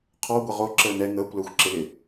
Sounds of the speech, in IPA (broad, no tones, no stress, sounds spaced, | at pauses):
qʰ ɔ ɡʷ ə ʁ o ǁ əː n ɛ ŋ əː kʷ l əː xʷ ǁ ɪ l ɪ